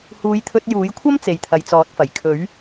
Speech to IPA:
h uː˨˧ j t̪ʰ ɵ˧ t̚ j uː˨˥ j kʷʰ ɐ˥ m t͡s e˨ j t̪ʰ ɐ˨ j t͡s ɔː˨˥ t̚ f ɐ˨˩ j kʰ ɵ˨˥ ɥ

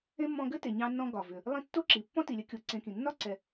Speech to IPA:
ẽ˥ mː ɔ̃˦ ɡ ɘ˥ t e˨ ɲ ɑ̃˦ nː ɔ̃˦ ɡ ɒ˩ v ʏ˩ | lˠ ĩ˦ tː o˥ ǁ i˩ pː ɔ̃˥ t i˨ lʲ ɘ˦ kʲ o˨ ǀ ẽ˨ k ĩ˩ nː ɒ˥ ǀ ɛ˨

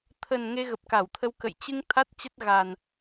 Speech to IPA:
t̪ʰ ə˨˩ n ŋ e˧ ɣ ə˨˩ p̚ k a˧˩ w t̪ʰ ə˧ w k ə̰˧˨ j t͡ɕ ɨ˧ ŋ t̪ʰ a˦˥ t̚ t͡ɕ ə˦˥ t̚ ɣ a˨˩ n

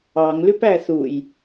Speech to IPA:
ɑ ŋ l ʉ p æ θ u j

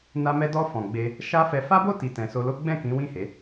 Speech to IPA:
n a˧ m ɛ˧ d ɔ˧ f ɔ̃˨ ɡ͡b e˧ | ʃ a˦ f ɛ˧ f a˦ b o˦˨ t i˨ t ɛ̃˨ s o˧ l o˦ ɡ͡b ɛ̃˦˨ k ĩ˨˦ w ĩ˦˨ h e˨˦

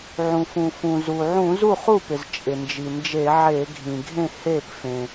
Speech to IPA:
ʕ ũ˩ f ũ˩ f ũ˩ z u˩ ʕ ũ˧˩˧ z u˥˩ χ u˥˩ p ɪ˩ z t͡ʃʼ ɪ˩ n d͡ʒ i˩ n d͡ʒ e˧˩˧ ʕ e˧˩˧ ɡʱ ĩ˩ ɡʱ ẽ˥˩ h e˥˩ p f ẽ˩

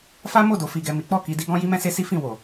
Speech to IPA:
f a˦ m o˦˨ d o˨ f i˨ ɡ ɛ˨ m i˨˦ k͡p ɔ˦˨ k i˧ d i˦ ɡ ɔ̃˦ j i˦ m ɛ̃˦ s e˦ s i˦ f ĩ˦˨ w o˨

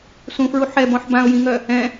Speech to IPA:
s ũ f ɹ u ħ ɛ b ɔ̃ ħ b ã ʊ̯ j ĩ ŋ œ | ɛ̃

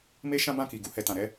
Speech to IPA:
m e˦ ʃ ã˦ b ã˦˨ k i˨ ɡ u˧ h ɛ˨ t ã˨ ɾ ɛ˧

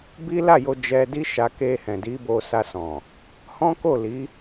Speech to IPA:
b i˦ l a˦˨ j o˧ d͡ʒ ɛ˧ d i˦ ʃ a˧ k e˧ h ɛ̃˨ d i˨˦ b o˧ s a˧ s ɔ̃˨ | h ɔ̃˦ k o˦˨ l i˨˦

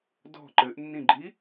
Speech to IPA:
d ɔ̤ ǃ ɘ ʔ nː ĩ ɡ͡ǃ i

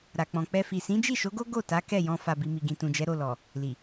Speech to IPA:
ɾ a˨ k͡p ɔ̃˨ k͡p ɛ˧ f i˨ s ĩ˨˦ d͡ʒ i˦˨ ʃ o˨˦ ɡ o˦ ɡ o˦˨ t a˨˦ k ɛ˦˨ j ɔ̃˧ f a˨ b i˨ m i˨ ɡ ĩ˨ t ũ˨ d͡ʒ ɛ˨˦ ɾ o˦˨ l ɔ˨ | l i˨

